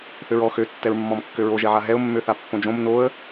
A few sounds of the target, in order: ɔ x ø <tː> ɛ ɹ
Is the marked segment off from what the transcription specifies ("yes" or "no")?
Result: no